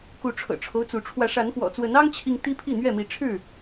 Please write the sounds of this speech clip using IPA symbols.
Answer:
k u˨˦ ʈ͡ʂʰ ɤ̰˨˩ ʈ͡ʂʰ o˦ ʊ̯ t͡s u˨˦ ʈ͡ʂʰ w ä˨˦ ʂ a˨˦ n x w ɔ̰˨˩ t͡s w ə˨˦ n ɑ˦ ŋ t͡ɕʰ i˨ ŋ t̪ i˦ pʰ i˥˨ n̪ ɥ ɛ˥˨ m i˨˦ ʈ͡ʂʰ ɻ̩˥˨

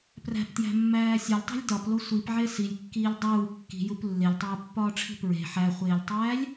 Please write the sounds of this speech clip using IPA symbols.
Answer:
p r æ̤ p t j æ̤ mː æː sʲ ɒ lʲ tˤ e̤ lʲ d ɒ p l o sʷ i p ʕ e s i lʲ kː iː lʲ dˤ uː kː i̤ j u p lː e lʲ tˤ uː pː ɒː ʈ͡ʂʰ i̤ p ɹ e̤ ħ æ χʷ eː lʲ tˤ æː lʲ

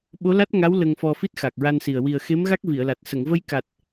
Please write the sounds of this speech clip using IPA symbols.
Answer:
ɓ o˧˥ l a˦˥ t̚ ŋ a˧˥ w l ə˧ ŋ f ɔ˧ f i˦˥ t̚ x a˨˩ k̚ ɹ a˧ n s i˨˩ ə̯ w i˨˩ ə̯ x e˧˥ m ɣ a˦˥ k̚ v i˨˩˨ ə̯ l a˨˩ t̚ s ə˨˩˨ ŋ v ə˧ j k a˨˩ t̚

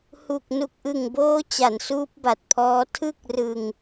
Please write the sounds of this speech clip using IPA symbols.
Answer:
h u˨˩ k̚ n u˨˩ k̚ ʔ ɯ˨˩ ŋ b oː˦˥ t͡ɕ a˩˦ n s uː˦˥ p̚ b a˨˩ t̚ pʰ ɔː˦˥ tʰ ɯ˥˩ k̚ r ɯ˧ ŋ

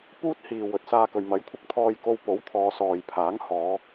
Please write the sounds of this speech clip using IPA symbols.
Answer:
p uː˥ t̚ h iː˨ w ɵ˨˥ t̚ s aː˧ k ɵ˨ ɥ m ɐ˨˥ j kʷʰ ɪ˧ k̚ t̪ʰ ɔː˧ j k o˧ w p o˨˥ w t̪ʰ ɔː˨˧ s ɔː˨ j pʰ aː˨˥ ŋ h ɔː˨˧

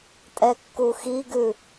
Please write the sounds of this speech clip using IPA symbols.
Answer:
tʼ ɛ kː u x i ɡ ʉ

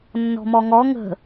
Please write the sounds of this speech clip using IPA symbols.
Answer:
nː ɔ̤ m ɔ ŋ ɔ ŋ ə̤

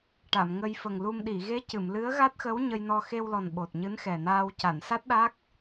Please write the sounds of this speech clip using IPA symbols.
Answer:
ʈ a˨˩˨ m ŋ ə˧ j f ə˨˩ ŋ l u˧ m ɗ i˨˩˨ ɣ e˧˥ c ɨ˨˩˨ m l ɨ˧˥ ə̯ ɣ a˦˥ t̚ x ə˧˥ w ɲ ə˧ j n ɔ˧ x e˧ w l ɔ˨˩ n ɓ o˨˩ t̚ ɲ ɨ˧˥ n x ɛ˨˩ n aː˧ w c a˨˩˨ n s a˦˥ t̚ ɗ a˦˥ k̚

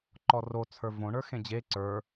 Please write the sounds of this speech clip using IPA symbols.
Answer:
ǃ ɔ r o t͡sʰ ə˞ v õ ɳ ə˞ x ẽ d͡ʑ e ǀ ə˞

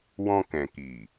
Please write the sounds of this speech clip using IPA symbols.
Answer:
w ɔ̃˧ k ɛ̃˨ k i˨

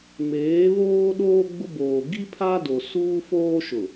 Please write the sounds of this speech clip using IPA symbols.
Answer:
m eː˨˦ β oː˦ ɗ oː˦ ɡ͡b ʊ˦ b oː˨ ɡ i˦ pʰ a˦ d o˨ s uː˦ f oː˦ ʃ ʊ˨

